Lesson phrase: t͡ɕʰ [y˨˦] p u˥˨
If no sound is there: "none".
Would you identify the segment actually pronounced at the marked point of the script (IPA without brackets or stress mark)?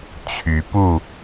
y˨˦